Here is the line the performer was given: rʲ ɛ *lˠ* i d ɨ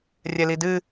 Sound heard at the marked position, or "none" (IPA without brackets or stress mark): l